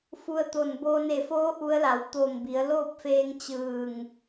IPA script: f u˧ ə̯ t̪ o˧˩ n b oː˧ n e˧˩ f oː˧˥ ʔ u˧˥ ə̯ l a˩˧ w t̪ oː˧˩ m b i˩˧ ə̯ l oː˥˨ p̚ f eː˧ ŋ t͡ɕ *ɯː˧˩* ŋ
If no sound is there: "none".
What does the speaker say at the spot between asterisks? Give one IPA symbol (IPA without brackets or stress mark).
ɯː˧˩